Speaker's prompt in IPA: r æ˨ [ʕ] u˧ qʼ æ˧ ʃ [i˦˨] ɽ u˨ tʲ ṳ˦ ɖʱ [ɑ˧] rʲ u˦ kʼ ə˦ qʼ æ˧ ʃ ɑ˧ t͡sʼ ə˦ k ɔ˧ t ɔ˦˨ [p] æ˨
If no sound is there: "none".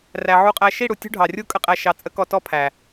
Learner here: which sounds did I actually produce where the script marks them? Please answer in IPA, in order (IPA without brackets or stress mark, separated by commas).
ʕ, i˦˨, ɑ˨, pʰ